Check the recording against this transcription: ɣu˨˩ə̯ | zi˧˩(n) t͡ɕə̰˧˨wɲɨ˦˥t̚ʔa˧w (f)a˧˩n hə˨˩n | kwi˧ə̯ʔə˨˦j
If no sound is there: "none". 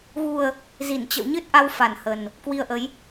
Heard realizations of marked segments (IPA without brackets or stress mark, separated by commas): n, f